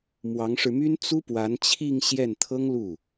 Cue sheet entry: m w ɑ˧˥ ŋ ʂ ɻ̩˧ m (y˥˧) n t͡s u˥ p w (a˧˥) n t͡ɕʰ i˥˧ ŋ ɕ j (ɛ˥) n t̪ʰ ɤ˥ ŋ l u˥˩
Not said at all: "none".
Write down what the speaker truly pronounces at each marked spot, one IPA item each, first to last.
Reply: y˥, a˧˥, ɛ˥˩

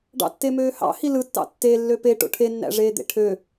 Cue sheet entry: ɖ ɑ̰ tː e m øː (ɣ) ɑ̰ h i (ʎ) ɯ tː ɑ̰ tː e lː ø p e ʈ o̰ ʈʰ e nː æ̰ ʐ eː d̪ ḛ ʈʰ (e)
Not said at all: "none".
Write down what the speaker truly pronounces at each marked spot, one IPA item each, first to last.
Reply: h, l, ø

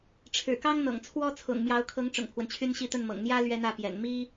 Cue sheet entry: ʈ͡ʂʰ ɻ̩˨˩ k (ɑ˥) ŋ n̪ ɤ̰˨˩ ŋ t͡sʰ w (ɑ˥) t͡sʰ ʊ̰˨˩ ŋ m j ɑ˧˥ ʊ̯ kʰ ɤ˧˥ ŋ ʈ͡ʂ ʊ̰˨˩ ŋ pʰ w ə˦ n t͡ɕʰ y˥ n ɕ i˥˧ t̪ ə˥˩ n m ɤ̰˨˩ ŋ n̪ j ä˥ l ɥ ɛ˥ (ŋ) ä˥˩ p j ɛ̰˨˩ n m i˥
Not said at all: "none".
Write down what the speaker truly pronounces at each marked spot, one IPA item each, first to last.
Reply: ɑ˥, ɔ˥, n̪

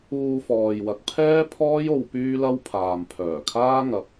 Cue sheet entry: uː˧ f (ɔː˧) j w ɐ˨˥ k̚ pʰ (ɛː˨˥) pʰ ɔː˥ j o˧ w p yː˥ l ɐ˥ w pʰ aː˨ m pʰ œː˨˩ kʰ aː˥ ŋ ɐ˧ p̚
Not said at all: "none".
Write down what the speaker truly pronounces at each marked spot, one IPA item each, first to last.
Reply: ɔː˨, ɛː˥

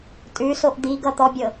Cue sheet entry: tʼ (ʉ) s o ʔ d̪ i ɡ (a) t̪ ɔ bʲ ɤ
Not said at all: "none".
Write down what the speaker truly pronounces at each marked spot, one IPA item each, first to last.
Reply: ʉ, ʌ

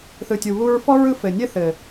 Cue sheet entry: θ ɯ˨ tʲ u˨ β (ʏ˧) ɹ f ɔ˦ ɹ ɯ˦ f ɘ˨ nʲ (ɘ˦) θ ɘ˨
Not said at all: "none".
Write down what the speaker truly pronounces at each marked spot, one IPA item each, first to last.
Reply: u˧, ɘ˦

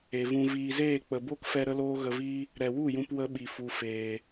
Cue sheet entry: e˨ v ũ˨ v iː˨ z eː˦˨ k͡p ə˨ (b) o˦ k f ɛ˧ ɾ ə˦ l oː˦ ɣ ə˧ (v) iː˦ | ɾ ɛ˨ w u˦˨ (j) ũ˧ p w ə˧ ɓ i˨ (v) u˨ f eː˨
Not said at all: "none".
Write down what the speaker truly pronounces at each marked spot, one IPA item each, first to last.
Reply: b, v, j, f

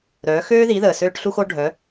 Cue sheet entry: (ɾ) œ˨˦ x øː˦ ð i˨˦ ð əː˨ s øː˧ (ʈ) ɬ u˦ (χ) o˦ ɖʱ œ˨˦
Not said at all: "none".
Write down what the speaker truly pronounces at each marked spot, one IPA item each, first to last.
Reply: ɾ, ʈ, x

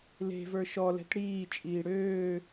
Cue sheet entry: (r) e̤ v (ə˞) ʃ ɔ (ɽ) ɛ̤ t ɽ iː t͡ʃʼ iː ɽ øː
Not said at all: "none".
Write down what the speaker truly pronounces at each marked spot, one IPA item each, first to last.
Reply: l, ə˞, l

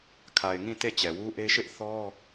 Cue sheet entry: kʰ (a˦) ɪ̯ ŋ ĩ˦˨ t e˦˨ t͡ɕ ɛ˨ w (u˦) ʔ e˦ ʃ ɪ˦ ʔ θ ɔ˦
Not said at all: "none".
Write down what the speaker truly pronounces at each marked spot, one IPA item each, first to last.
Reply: a˨, u˦

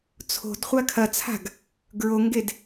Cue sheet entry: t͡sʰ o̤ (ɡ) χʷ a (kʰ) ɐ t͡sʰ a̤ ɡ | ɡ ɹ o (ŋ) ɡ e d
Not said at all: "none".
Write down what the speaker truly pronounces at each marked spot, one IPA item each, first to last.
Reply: d, kʰ, ŋ

